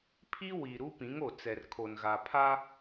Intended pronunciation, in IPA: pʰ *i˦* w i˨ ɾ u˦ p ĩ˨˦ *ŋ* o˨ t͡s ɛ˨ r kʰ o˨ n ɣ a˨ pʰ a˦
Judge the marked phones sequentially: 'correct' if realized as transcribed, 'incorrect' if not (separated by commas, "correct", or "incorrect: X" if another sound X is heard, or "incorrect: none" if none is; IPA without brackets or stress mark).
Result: correct, correct